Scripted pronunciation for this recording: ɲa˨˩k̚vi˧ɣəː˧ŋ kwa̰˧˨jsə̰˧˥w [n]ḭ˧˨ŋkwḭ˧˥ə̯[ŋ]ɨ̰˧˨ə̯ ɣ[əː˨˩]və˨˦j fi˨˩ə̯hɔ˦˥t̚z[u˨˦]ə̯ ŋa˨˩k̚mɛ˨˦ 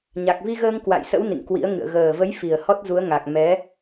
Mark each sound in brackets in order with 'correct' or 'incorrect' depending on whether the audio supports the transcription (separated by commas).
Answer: correct, correct, correct, correct